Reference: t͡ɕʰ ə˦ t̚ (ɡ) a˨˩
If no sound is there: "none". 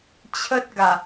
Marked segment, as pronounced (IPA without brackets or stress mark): ɡ